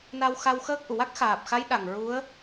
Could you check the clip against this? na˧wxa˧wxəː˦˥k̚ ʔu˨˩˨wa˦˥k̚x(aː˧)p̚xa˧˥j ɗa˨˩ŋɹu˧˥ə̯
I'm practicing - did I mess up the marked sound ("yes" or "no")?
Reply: yes